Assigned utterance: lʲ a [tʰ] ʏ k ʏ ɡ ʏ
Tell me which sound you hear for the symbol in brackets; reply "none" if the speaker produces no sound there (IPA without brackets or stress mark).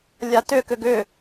t